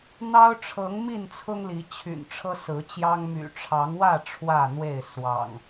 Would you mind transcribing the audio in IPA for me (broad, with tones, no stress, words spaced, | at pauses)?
n̪ɑ˦ʊ̯ʈ͡ʂʰɤ˨˦ŋmi˥˨nt͡sʰʊ˦ŋ li˨˦t͡ɕʰy̰˨˩n ʈ͡ʂʰɤ˦sɹ̩˨˦t͡ɕjɑ˦ŋ my̰˨˩ʈ͡ʂʰɑ˨˦ŋwä˥˨ ʈ͡ʂʰwä˥˨n̪we˥˨ɪ̯ swɑ̰˨˩ŋ